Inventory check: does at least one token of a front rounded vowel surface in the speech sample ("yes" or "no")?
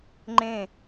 no